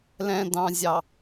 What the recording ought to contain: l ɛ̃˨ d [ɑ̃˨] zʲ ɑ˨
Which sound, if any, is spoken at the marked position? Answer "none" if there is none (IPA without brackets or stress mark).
ɑ̃˨